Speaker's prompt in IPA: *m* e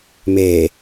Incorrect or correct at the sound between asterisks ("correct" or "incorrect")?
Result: correct